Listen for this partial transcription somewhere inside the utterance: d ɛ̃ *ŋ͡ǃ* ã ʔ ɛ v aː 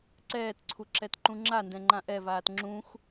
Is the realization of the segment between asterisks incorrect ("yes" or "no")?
no